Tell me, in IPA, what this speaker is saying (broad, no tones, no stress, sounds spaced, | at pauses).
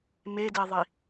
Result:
m e d e ðˤ i